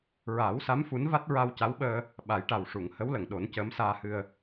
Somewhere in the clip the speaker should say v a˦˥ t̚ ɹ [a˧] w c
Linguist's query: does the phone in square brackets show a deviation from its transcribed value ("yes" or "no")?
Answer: no